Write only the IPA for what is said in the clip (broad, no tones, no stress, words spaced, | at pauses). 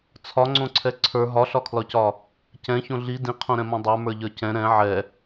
t͡sʰɒŋ͡ǀõǀʰɛ ǀʰə˞ ɦɒɬɒkʰlɒcɒ | cɛ̃çõ ɮi dĩqʰõɾɛ̃mõ dˤə˞mə˞ʎə˞ cɛ̃ ɾɛ̃ ʕɛ